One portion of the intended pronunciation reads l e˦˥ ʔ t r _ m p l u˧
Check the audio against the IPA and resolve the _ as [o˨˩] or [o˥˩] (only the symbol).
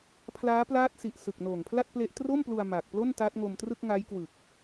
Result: o˥˩